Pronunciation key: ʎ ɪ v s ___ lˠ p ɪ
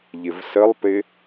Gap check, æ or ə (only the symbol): ə